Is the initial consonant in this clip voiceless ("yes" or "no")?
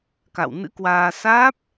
yes